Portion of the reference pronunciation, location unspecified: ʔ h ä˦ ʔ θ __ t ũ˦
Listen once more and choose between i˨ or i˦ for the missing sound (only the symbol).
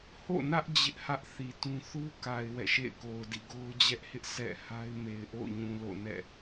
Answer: i˨